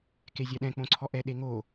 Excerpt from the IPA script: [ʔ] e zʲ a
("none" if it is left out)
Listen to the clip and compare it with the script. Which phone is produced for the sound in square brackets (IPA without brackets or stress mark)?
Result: k